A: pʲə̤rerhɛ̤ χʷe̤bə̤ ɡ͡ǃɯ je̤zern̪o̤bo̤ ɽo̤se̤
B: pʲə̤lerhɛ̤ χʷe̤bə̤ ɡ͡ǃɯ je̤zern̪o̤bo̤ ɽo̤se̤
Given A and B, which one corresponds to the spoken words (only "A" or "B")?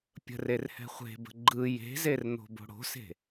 A